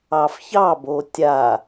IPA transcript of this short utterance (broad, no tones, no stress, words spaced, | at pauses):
ɑfçɑbo tʲa